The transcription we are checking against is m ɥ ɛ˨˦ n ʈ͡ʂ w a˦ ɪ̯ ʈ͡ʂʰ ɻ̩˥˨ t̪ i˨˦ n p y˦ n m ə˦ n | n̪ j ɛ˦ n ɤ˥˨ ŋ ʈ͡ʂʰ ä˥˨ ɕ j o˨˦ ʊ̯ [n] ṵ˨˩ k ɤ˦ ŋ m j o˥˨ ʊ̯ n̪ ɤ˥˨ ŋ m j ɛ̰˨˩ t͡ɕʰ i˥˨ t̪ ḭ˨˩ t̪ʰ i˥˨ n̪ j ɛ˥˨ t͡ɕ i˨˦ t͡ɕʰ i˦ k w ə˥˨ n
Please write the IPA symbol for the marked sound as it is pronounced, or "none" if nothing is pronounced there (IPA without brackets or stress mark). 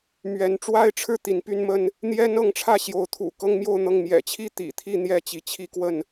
t̪ʰ